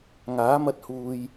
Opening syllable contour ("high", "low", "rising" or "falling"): rising